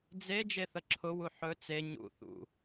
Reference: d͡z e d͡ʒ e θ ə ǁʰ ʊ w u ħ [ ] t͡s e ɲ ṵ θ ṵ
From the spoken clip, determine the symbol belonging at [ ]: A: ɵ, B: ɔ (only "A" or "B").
A